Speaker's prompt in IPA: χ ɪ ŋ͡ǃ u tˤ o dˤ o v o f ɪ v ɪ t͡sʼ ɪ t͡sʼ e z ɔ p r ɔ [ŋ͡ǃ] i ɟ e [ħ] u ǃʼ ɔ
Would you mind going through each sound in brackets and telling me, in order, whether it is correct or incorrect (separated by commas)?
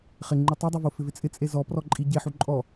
incorrect, correct